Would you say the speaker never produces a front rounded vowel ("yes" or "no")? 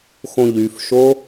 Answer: no